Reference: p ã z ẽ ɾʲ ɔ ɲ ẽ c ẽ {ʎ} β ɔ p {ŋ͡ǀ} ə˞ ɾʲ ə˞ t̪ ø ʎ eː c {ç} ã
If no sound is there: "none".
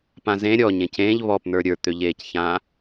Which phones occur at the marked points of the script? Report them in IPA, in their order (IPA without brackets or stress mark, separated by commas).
ʎ, n̪, ç